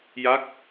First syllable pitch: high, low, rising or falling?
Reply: falling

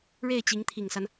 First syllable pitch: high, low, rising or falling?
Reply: falling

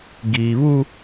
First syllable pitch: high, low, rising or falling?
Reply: low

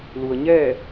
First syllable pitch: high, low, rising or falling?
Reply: low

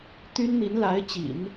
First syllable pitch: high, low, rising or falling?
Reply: high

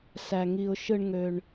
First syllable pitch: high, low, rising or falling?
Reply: low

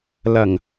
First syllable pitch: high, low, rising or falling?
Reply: low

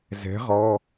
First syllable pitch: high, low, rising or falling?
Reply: rising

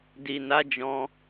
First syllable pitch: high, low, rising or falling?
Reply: low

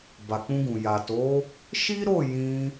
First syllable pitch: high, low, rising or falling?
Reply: low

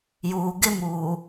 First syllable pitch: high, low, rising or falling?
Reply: low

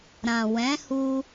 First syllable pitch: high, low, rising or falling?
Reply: low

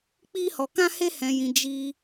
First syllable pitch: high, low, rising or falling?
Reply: high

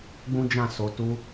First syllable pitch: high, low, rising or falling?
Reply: high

